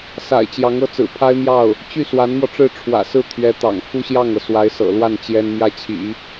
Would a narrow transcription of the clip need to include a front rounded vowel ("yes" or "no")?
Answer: yes